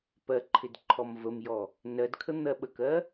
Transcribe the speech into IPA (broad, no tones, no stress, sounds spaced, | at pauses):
p ɜ ǃʰ ɪ d ǃʰ ɔ m v ə m j ɔ | n ɜ d kʰ ə n̪ ɜ ɓ ə k ɜ